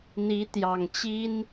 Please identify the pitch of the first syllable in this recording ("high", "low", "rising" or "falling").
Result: rising